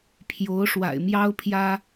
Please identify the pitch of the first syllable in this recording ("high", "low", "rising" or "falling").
rising